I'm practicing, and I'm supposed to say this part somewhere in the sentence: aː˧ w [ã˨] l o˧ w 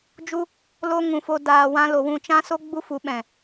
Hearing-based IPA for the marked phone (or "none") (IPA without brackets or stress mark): ã˦